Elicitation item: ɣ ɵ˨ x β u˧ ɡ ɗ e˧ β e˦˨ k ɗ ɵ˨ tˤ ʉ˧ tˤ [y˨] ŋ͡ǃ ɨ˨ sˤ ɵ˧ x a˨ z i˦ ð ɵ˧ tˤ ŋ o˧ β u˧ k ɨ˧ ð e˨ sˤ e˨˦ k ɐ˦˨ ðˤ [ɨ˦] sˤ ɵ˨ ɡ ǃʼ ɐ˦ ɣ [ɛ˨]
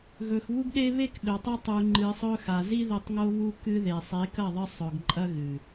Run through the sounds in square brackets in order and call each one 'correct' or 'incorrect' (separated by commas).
incorrect, incorrect, incorrect